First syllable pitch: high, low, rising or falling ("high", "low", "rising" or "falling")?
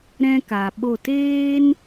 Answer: high